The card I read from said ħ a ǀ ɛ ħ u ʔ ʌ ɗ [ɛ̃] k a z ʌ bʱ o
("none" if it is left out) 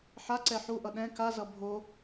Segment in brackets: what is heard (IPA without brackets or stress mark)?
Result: ɛ̃